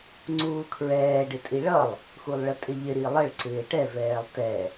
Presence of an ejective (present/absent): present